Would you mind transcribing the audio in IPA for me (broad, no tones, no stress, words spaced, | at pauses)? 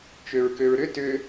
t͡ʃøɹkøɹɾʏ tʏ